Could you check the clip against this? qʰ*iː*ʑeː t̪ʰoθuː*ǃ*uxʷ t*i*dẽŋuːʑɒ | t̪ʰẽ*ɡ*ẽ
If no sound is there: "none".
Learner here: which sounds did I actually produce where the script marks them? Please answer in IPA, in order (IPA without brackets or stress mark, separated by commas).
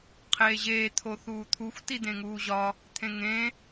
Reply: eː, t̪ʰ, i, ŋ